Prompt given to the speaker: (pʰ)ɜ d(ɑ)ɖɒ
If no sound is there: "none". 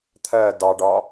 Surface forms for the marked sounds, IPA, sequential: t̪ʰ, ɑ

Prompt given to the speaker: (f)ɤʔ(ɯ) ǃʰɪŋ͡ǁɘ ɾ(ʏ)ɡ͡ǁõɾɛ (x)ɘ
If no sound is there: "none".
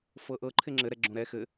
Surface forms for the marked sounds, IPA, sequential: f, ɤ, ɛ, x

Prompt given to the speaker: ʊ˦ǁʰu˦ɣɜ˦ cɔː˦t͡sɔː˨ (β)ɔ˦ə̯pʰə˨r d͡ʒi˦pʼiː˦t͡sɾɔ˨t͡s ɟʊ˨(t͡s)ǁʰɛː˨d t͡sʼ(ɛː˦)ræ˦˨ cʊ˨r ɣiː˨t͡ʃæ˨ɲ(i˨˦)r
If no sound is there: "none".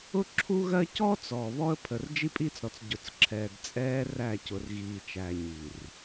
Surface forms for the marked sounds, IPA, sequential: β, t͡s, ɛː˦, i˨

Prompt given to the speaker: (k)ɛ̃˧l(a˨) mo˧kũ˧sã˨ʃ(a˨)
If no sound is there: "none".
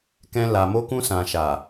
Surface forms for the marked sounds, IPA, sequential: k, a˨, a˨

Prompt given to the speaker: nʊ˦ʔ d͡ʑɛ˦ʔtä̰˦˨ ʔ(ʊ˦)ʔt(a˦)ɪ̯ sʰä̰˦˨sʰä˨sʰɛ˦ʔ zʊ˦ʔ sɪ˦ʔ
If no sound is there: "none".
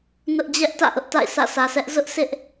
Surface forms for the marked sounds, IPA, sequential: ʊ˦, a̰˦˨

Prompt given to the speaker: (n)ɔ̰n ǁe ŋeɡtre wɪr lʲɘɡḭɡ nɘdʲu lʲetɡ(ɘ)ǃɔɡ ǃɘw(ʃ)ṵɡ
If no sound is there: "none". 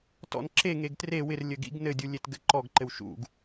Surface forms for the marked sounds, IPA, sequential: t, ɘ, ʃ

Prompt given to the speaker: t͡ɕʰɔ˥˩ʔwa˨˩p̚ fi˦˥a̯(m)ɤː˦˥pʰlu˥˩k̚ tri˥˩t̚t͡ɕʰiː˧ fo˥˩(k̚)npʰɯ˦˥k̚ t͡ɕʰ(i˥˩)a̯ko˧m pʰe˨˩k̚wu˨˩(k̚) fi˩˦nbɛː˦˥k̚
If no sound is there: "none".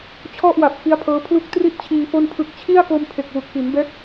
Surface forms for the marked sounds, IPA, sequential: pʰ, none, i˥˩, k̚

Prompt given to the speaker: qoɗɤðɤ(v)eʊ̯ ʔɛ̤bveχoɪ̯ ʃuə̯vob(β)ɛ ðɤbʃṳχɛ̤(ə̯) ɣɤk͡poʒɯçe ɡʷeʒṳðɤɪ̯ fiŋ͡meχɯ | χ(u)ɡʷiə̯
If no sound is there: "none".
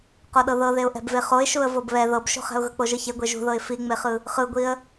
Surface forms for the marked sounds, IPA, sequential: ð, β, ʊ̯, ɯ

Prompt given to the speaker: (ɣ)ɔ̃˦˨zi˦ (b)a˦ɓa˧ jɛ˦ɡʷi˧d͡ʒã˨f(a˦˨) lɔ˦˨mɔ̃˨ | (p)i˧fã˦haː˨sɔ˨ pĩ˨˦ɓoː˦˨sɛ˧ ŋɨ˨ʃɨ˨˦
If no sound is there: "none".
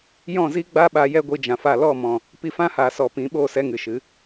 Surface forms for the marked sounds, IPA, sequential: j, ɡ͡b, a˦˨, p

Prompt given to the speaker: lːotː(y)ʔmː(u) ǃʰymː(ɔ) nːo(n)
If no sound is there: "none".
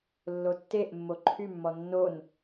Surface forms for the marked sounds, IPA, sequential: e, o, ɔ, n

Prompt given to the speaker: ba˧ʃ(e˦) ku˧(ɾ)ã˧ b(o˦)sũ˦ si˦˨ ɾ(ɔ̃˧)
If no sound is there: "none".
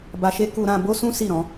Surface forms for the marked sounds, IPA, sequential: e˦, ɾ, o˦, ɔ̃˧

